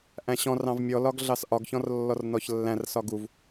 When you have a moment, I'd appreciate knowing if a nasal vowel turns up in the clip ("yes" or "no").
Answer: yes